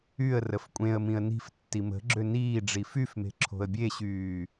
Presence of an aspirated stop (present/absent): present